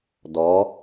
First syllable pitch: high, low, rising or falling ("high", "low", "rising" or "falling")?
rising